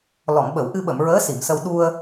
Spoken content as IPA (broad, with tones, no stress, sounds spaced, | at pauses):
l ɔ˨˩˨ ŋ ɓ ə˨˩˨ w ʔ ɨ˧ ɓ ə˨˩˨ m ɹ əː˧˥ s i˨˩˨ m s ə˧ w ɗ u˧ ə̯